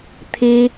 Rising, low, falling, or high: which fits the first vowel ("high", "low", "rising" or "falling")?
high